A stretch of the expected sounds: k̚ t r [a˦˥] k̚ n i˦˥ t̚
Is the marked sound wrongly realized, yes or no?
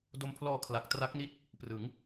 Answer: no